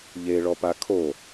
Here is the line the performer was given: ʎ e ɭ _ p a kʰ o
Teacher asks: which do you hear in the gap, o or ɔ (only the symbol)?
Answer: ɔ